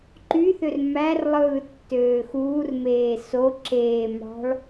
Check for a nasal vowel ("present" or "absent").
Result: absent